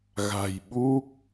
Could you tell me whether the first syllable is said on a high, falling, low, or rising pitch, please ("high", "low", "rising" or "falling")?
low